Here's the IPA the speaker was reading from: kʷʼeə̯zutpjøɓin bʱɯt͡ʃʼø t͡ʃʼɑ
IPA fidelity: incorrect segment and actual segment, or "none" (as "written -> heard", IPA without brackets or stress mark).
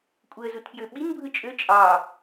none